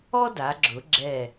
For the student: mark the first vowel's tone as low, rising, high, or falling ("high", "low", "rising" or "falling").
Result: high